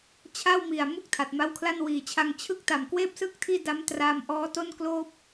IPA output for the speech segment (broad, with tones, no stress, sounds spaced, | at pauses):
t͡ɕʰ a˥˩ w m i˨˩ a̯ m u˥˩ k̚ tʰ a˨˩ t̚ m a˦˥ w kʰ l a˥˩ n w iː˨˩ t͡ɕʰ a˧ ŋ t͡ɕʰ ɯ˥˩ k̚ t a˨˩ m k w eː˥˩ p̚ s ɯ˥˩ k̚ tʰ iː˥˩ d a˦˥ m t r aː˧ m ʔ ɔː˦˥ t o˥˩ n k l oː˥˩ p̚